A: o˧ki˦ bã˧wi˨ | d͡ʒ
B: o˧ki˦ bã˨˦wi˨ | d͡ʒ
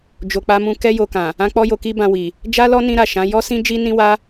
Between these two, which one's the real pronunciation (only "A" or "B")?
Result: A